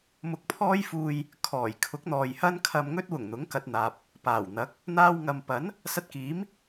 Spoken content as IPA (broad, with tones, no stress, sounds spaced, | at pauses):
m ʊ˧ k̚ pʰ ɔː˥ j f uː˧ j | kʰ ɔː˨˩ j kʰ ʊ˨˥ k̚ n̪ ɔː˨ j h ɐ˥ n kʰ ɐ˧ m ŋ ɵ˥ t̚ w ʊ˨˩ ŋ n̪ ʊ˨˥ ŋ k ɐ˨ t̚ n̪ aː˨ p̚ | p aː˨˩ w n̪ ɐ˨˥ k̚ | n̪ aː˧ w ŋ ɐ˨ m p ɐ˨˥ n | s ɐ˧ t̚ k iː˨˥ m